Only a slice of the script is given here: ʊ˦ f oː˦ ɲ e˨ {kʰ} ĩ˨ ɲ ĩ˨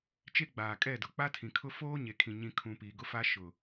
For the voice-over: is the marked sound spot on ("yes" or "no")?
yes